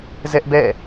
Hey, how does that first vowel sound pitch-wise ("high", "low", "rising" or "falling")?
high